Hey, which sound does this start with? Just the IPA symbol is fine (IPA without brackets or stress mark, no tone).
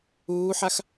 uː